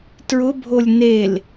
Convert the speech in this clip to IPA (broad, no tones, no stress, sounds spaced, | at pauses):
t ɹ ʊ bʱ o lʲ n e l